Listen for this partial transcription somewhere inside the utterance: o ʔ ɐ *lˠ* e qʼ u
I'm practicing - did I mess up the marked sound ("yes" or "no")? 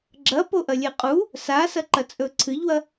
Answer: yes